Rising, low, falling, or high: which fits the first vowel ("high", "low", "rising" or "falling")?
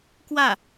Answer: falling